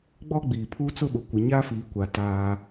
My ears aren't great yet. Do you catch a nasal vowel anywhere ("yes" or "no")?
no